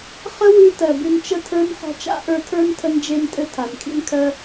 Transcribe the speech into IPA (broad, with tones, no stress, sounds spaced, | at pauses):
χ ə˦ w ʉ˧ t ɜ˨ b ʉ˧ n t͡ʃ ə˦ tʰ ə˞˦ n χ ɔ̤˧ t͡ʃ a̰˦ ʔ ə˞˧ tʰ ə˞˦ n tʰ ə˦ n d͡ʒ e˦ n tʼ ɘ˦ tʰ a˨ n kʰ ḭ˦ n kʰ ɜ˦